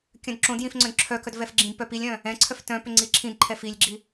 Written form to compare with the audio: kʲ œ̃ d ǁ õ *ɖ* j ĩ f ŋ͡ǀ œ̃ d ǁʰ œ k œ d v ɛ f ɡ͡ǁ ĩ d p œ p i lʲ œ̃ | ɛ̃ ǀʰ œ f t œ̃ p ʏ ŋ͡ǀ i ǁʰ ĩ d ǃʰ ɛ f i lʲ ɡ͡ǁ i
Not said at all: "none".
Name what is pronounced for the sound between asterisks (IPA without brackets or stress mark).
d